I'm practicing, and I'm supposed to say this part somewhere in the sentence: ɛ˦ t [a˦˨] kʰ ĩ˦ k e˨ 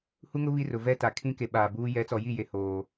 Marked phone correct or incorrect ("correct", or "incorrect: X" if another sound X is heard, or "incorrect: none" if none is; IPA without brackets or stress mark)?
incorrect: a˨